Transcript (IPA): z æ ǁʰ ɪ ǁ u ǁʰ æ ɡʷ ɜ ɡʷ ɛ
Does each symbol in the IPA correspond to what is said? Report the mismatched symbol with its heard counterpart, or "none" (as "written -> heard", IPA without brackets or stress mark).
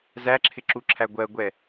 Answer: none